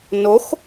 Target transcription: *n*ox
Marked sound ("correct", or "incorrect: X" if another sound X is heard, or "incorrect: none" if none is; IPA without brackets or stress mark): correct